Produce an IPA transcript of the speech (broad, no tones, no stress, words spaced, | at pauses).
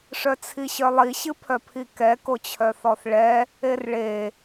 ʂœt͡sʰiɕœlˠi ɕɨpʰœpʰikɛ kot͡ɕʰœθɔθɭɛ | erɭe